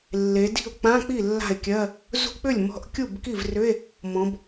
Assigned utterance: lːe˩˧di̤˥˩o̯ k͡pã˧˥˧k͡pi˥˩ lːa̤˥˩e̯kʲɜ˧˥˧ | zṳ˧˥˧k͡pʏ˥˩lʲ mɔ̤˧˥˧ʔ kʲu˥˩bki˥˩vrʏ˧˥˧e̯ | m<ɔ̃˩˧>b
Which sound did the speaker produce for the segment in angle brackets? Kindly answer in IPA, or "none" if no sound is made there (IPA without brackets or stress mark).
ɔ̃˩˧